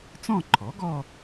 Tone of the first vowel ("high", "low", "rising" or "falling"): falling